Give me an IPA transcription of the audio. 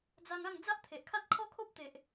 d͡za˧ŋa˥˧ŋ d͡za˦ʔt̪ʰe˨ʔ kʰa˦t̚kʰɔ˦kʰo˦p̚ t̪e˨ʔ

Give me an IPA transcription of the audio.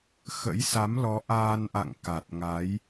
xə̰˧˥jsa˨˦mlɔ˨˦ ʔaː˧nʔa̰˧˨ŋ ka˨˩t̚ŋa˨˦j

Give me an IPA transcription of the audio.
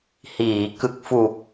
hiː˩˦kɯ˨˩k̚fu˨˩k̚

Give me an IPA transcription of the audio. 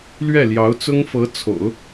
lɥɛ˥˩ljɑ˧˥ʊ̯t͡sʊ˥ŋfɤ˧˥ t͡sʰo̰˨˩˦ʊ̯

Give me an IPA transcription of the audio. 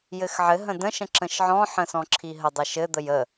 jɘxʕɘɦə̃ də̃ʃə̃ ǁə̃ʃʕɔ̃ħə̃ sɔ̃ǁʰiɦədˤɘ ʃɘd̪əj ə

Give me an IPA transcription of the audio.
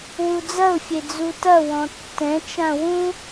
wud͡zɐʊ̯fʲe d͡zutɐwɔ̃ tːɛ̃t͡ʃã wũ

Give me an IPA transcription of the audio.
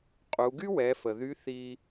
qʼu˩˧ ɡy˥wɛ˩˧fə˩ ðy˧˥ θi˧

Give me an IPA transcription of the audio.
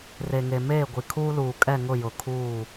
re˨ŋe˨meː˦˨ ɡʷi˨kʰuː˦luː˨ kʼɛ˦˨ŋʊ˦˨ jʊ˨kʰuː˦˨

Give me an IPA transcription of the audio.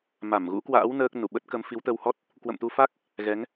ma˧˩mɣṵ˧˥kwa̰ː˧˥w nəː˦˥k̚nu˧˩ ɓə˦˥t̚kə˨˦m fi˨˦wt̪ə˧whɔ˦˥t̚ | kwə̰˧˨mt̪u˧fa˦˥k̚ | ɣɛ˨˦ŋ

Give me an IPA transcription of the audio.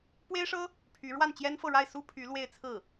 pwe˥ɪ̯ʂɤ˥ | pʰy˧˥ ɻwa˥˩nt͡ɕjɛ˥nfɤ˥˧ ɻa˥˩ɪ̯ su˥pʰy˧˥ lwe˥˧ɪ̯t͡sʰɹ̩˥˩

